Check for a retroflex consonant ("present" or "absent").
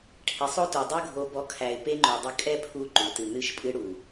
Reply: present